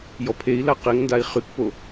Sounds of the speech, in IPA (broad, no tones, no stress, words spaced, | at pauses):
jɔpʰei̯la qeŋndai̯ χykpo